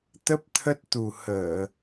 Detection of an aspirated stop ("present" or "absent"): present